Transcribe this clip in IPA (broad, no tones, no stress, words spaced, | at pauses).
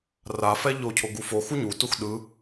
rafɛ ʎocʰoɡu fo xuɲutux ɗɯ